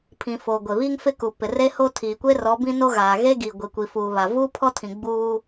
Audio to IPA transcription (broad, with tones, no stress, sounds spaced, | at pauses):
pʰ ĩ˨ f o˨ ɡʷ e˨ β iː˦ ŋ f ɪ˦ k u˨ p ɪ˨ r e˦ h o˦ tʰ iː˨ kʷ e˦ r ɔ˨˦ b ĩ˦ n o˦ ɣ aː˨ ɣ e˦ ɡ i˨ ɡʷ i˨ kʷ i˨ f uː˨ β a˨ v uː˦ pʰ ɔ˦ tʰ ĩ˨ ɡ͡b uː˦